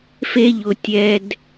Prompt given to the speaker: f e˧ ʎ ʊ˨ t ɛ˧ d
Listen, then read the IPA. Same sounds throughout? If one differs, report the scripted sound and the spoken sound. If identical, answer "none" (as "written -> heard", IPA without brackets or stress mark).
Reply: t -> tʲ